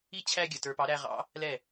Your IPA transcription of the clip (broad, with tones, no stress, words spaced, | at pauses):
i˥ t͡ɕʰæ˥ɡʲə˩tə˞˧ pɑ˩˥ɾæ˧ʁɑ̰˩˥ | lɛ˥˩